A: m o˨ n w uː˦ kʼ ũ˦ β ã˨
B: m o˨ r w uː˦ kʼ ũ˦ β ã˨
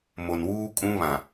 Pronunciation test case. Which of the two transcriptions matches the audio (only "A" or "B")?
A